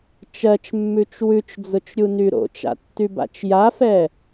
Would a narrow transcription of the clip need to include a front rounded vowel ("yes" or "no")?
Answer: yes